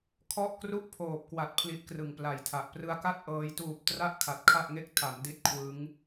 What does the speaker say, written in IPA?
kʰɔ˥˩ʔ kru˥˩ʔpʰoː˨˩p̚kwa˨˩t̚ pʰli˦˥ʔkrɯ˨˩ŋpla˨˩jtʰa˨˩ʔ prɯ˧a̯ ka˥˩t̚ ʔɤː˧j tuː˨˩p̚ tra˥˩ʔ kʰa˨˩t̚kʰa˥˩ʔŋe˥˩k̚ tʰa˩˦mdi˦˥t̚ kʰwɯ˦˥ŋ

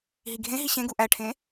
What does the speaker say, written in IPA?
ɦiɡʱẽɦi ɕẽɡu ʔæʈʰẽ

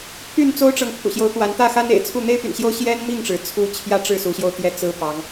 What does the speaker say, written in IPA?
pʰy˥˨n t͡so˦ʊ̯ʈ͡ʂɤ˨ŋ pʰṵ˨˩ɕjo˨˦ʊ̯t̪wa˨˦n t̪ä˥˨xa˦nḛ˨˩ɪ̯t͡sʰu˥˨ n̪e˦ɪ̯py̰˨˩nɕjo˦ʊ̯ ɕjɛ˦nmi˥˨ŋʈ͡ʂɻ̩˩ t͡sʰu˦ t͡ɕʰjä˦ʈ͡ʂɻ̩˥˨ su˨˦ɕjo˧ʊ̯ t̪jɛ˥˨t͡sɹ̩˦pɑ˨˦ŋ

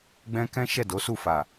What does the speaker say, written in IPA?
ɡ͡bɛ̃˦ kɛ̃˦ ʃɛ˦˨do˨˦su˦˨fa˨

